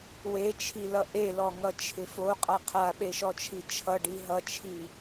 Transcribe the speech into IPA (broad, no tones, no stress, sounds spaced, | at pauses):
w e t͡ʃʰ i l ʌ ʔ e l ɔ ŋ ʌ t͡ʃʰ ɪ f o qʼ a qʰ a ɓ e ʃ ɔ t͡ʃʰ i t͡ʃʰ ʌ ɖ i ɦ ʌ t͡ʃʰ i